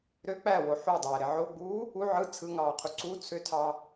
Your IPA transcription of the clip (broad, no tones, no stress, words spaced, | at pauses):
ɾø k͡pæwo ħudˤæɾe ʕoɡ͡buː | u ʕɯ t͡sʰɯŋɑːqʰu ǀu t͡sʰøtʰɑ